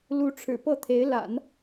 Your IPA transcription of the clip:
l u˧˥ ʈ͡ʂʰ ɻ̩˨˩ p ɤ˥˩ t̪ʰ e˧˥ ɪ̯ l a̰˨˩˦ n

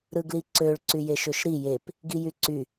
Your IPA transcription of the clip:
ɾ ɯ ɡ l i ǀ ø ɭ ǀ y j e ʃ ø ʃ ɾ i j e p | ɡ i j y ǀ y

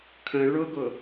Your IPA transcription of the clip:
kʰ ə̃ ɭ ʊ ɡ ʊ

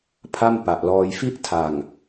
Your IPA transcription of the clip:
pʰ a˥˩ m p a˨˩ ʔ l ɔː˧ j f i˥˩ ʔ tʰ a˨˩ ŋ

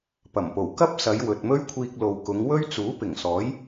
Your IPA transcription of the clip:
p ɐ˨˩ m p o˨˩ w k ɐ˥ p̚ s ɐ˨˧ j w ɵ˨ t̚ m ɵ˥ ɥ kʷʰ iː˧ k̚ l o˨ w k ʊ˨˧ ŋ w ɵ˥ ɥ t͡s uː˨˥ p ɪ˨˩ ŋ s ɔː˨˥ j

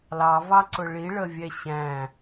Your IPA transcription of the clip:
l ɑ v ɑ ǀ ʊ ɭ i ɭ ə vʲ ɛ ɕ æ̃

